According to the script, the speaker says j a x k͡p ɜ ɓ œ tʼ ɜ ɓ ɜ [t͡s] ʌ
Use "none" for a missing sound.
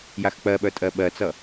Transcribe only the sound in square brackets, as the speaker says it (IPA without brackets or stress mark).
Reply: t͡s